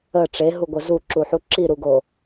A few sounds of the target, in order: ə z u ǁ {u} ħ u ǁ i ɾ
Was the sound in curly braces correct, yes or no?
yes